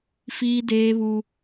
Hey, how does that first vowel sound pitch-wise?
high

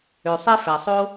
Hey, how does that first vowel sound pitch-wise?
low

